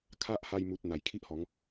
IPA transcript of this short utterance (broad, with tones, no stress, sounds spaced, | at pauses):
kʰ a˦ ʔ h a˧ j m u˨ t̚ n̪ a˨˩ j kʰ i˦ ʔ h ɔ˨˦ ŋ